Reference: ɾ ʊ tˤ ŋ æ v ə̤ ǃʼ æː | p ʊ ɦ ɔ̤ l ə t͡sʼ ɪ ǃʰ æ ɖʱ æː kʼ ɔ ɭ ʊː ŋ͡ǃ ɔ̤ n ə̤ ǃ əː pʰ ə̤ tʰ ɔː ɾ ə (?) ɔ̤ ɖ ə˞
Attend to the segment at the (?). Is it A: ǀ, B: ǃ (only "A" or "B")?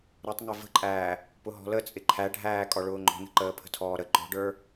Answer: B